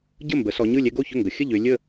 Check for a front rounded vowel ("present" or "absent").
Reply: present